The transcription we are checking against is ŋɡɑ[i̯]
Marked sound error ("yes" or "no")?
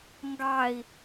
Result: no